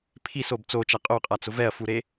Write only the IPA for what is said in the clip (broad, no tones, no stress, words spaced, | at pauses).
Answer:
pʰisob t͡sot͡ʃa qʼoqʼat͡sʊ vɛɐ̯fuɾe